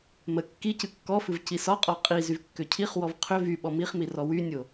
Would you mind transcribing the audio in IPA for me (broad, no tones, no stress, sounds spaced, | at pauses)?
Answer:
m ə kː i c ɨ kː ɔ f ɨ v c i s ɒ qʼ ɔ qʼ i z y v kː ʏ cʰ i χ w ɔ v qʰ ʏ v y ɓ ɔ m i χ m i r ɔ w y nʲ o